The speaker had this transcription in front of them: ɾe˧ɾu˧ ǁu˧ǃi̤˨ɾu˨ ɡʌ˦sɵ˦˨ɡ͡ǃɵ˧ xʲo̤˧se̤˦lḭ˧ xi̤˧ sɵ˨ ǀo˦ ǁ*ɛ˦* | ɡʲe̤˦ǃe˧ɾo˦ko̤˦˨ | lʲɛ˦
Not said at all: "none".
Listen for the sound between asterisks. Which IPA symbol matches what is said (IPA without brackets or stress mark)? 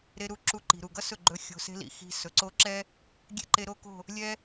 ɛ˦